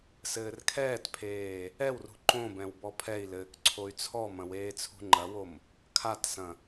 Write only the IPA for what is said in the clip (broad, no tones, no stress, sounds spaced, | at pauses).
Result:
s ɘː r kʰ ɛː t pʰ eː | ɛ w r ṳ ǃ õ b ɛ̃ w b ɔ pʰ ɛ i̯ l ɘː k ǀʰ o y̯ t͡sʰ ɔ m ɐ̃ w eː t͡sʰ ṳ ŋ͡ǃ ɐ w o m | kʰ a t s ɐ̃